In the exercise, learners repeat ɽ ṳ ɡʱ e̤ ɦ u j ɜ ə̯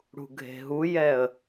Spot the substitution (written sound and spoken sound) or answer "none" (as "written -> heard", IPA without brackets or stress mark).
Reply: ɜ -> ɛ